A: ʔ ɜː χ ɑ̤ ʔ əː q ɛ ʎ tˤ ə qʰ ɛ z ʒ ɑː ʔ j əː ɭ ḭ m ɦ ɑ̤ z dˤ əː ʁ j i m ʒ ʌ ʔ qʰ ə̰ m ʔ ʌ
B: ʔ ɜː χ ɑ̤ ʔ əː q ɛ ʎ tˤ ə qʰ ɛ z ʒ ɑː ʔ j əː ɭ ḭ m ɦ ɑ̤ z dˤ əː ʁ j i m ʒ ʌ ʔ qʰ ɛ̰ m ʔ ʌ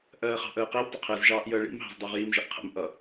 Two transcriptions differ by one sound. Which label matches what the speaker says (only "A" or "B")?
A